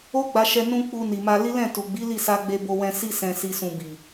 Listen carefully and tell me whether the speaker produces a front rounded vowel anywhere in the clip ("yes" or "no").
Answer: no